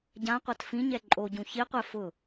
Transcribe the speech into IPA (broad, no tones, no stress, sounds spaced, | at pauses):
ɟ ã qʷ a t f ĩ ɲ ɛ ǃʼ o ɟ ũ ç i qʷ ɛ f ʊ